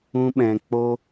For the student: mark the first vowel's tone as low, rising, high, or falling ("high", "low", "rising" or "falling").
high